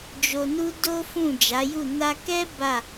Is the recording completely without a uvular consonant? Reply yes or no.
yes